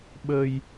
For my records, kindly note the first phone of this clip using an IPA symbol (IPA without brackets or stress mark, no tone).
ɓ